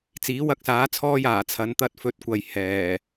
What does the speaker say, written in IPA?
t͡siː˨˥ wɐ˧k̚saː˨˥t͡sʰɔː˧j aː˨˩t͡sʰɐ˨˧nt̪ɐ˥t̚ fɵ˧t̚kʷɐ˨j hɛː˨˩

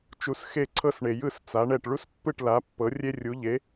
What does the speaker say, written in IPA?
t͡ʃu˧sxe˥˩ǀʰɤ˥s ɳe˩jɯ˥˩s t͡sa˩˥ɳɛ˥˩ʈ ɭu˥spːɯ˥˩ʈ la˩˥pːɤ˩˥ rʲe˥rʲu˩˥ ʎe˩˥

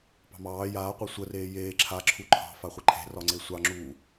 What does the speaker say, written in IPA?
pɑ̤mɑː jaːqʷɑ sʷəreː jeː ǁʰaǁʰu ǃʰɑ̤fa χʷəǃʰe̤rɒŋ͡ǀe sʷɑŋ͡ǁuː

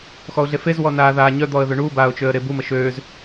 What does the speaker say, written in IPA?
xɔʊ̯ɮefez wɔnaːðaːɲœ d̪ɔə̯ðøɳu baːʊ̯t͡ʃøə̯ɾebu məʃøːz

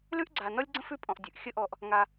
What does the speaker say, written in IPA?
lʉ˥ʔɡ͡ǀa˨nɔ˥lʲɡ͡ǀə̃˥f ʉ˦pʼɔ̃˨ʔdʲʉ˩ʔ xʲə˦ʔɔ˨ʔ | ŋa˨

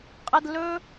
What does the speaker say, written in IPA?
qʼə˦d lɵ˧

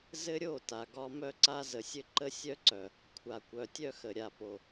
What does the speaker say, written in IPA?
zɘ˦ɾʲo˦˨ ta˨ɡɒ˦ mœ˦ǀa˦ zə˨sʲɘ˦ǃə˦ sʲœ˦ǀœ˨ | kʷʰa˨kʷœ˨tʲœ˦xə˨ ɾʲa˨po˨

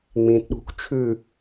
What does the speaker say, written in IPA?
ŋ͡mĩːtɗṳk t͡ʃʰʉ

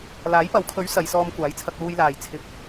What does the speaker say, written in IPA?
laː˨˥jpɐ˨˥wkʰɵ˨˥ɥ sɐ˨˧jsɔː˧m kʷaː˨˥jt͡sʰɐ˧k̚ luː˧jlaː˨j t͡sʰɪ˨˥k̚

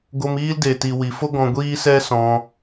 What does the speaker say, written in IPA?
ɡo˧miː˦lde˨ ti˨wi˨fo˦ ɡɔ̃˧ɡʷiː˦sɛ˦ sɔ̃˧

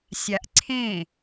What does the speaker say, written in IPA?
sʲaʔǀʰẽ

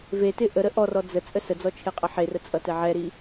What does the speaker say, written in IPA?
vetɪ ʔə ɾəʔɔrɔ d͡zə t͡sʼəsəd͡zɔ t͡ʃʰeqʼəħerə t͡sʼʌtɛʕɛɾi

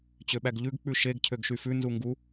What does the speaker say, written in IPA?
t͡ɕøɓæɡʎʉɡ k͡pʉʃeɡ cʰøɡʃyfʉ nzuŋɡu

